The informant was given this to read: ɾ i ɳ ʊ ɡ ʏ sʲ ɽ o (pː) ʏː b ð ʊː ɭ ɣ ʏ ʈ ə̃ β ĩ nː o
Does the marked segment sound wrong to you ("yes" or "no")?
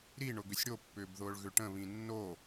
no